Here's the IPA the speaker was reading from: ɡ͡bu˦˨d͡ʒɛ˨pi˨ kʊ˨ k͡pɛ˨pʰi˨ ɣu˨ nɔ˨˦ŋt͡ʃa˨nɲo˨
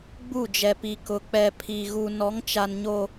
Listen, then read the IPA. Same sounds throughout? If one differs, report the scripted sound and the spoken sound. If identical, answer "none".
none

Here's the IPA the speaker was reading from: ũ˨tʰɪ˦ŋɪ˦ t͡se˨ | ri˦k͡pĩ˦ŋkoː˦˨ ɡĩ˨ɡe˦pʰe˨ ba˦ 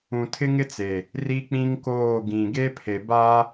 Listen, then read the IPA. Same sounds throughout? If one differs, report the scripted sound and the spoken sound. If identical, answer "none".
none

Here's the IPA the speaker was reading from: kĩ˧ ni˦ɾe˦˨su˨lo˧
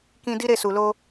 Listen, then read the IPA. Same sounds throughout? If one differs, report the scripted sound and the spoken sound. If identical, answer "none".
n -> d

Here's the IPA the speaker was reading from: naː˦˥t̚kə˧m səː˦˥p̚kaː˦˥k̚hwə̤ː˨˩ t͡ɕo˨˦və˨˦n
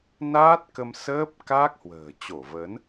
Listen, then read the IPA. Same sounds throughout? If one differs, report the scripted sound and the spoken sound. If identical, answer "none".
o˨˦ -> o˧˩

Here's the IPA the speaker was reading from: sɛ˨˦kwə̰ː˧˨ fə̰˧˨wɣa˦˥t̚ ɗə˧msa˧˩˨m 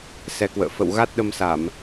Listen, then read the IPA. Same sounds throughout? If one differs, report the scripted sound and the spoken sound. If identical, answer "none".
none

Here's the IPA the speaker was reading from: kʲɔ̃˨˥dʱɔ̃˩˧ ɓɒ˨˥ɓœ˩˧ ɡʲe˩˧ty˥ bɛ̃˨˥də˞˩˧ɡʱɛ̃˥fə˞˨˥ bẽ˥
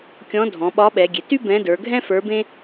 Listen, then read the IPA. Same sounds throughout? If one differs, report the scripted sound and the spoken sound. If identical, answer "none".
œ˩˧ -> ɛ˩˧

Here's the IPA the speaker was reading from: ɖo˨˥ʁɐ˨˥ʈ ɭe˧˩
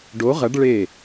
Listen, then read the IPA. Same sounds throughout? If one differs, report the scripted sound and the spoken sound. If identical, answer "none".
ʈ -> ɖ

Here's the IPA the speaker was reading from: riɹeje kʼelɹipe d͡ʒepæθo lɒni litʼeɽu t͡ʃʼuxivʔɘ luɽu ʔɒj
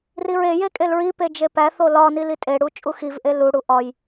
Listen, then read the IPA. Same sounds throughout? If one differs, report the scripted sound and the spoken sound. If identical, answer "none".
ɘ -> e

